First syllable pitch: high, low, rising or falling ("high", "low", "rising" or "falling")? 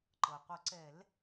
low